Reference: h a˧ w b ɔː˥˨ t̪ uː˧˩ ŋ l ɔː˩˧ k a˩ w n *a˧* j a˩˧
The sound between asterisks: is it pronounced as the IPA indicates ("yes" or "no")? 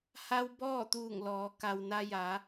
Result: yes